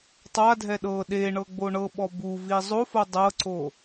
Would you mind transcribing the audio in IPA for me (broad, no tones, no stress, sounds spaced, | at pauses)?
tˤ a dʱ ɛ ɗ ɤ ɗ e ɳ ɤ ɡ͡b o ɳ ɤ ɓ ɔ b u v i zˤ o f o dˤ ɤ ǀ o